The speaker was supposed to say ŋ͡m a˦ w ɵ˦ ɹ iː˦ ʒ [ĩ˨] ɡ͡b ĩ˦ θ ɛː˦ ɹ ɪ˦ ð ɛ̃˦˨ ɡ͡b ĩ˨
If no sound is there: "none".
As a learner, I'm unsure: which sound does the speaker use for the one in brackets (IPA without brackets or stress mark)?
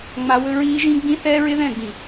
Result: ĩ˦